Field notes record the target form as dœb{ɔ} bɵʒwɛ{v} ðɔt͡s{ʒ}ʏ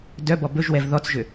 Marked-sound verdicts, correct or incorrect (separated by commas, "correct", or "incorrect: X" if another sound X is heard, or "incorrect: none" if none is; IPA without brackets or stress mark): correct, correct, correct